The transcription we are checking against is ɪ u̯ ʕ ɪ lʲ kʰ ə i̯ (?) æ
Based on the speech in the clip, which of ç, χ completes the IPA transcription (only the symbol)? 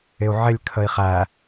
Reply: χ